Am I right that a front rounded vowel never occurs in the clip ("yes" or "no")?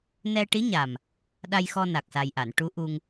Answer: yes